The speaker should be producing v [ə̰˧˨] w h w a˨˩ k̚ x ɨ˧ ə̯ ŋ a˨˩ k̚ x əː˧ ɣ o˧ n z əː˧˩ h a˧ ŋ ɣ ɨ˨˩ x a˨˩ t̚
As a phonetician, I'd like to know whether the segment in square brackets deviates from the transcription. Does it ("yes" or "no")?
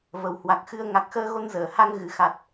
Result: yes